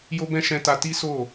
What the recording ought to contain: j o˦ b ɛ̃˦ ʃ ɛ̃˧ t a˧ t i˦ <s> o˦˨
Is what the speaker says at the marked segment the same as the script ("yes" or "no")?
yes